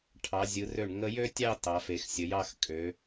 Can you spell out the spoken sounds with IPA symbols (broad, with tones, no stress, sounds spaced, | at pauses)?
ʈʰ ɑ˩˧ zʲ ɯ˩˧ r ø˧˩ ɳ ŋ ə˧ j ø˥ tʲ ɑ˥˧ t ɑ˩˧ f e˩˧ x sʲ ə˩˧ j ɑ˥˧ x kʼ ø˩˧